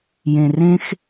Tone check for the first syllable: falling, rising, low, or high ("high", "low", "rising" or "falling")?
low